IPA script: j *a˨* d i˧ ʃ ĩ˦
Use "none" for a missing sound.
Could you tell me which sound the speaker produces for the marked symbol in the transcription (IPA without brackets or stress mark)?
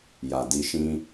a˨